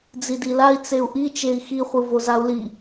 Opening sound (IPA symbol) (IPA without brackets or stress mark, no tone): d͡z